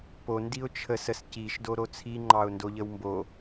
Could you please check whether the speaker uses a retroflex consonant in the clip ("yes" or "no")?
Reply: no